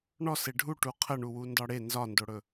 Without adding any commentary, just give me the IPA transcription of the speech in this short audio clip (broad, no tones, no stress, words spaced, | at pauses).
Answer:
ɳɔse ɖʱuʈu qʰəɳuwu ndɒɽe nzɒndoɽɵ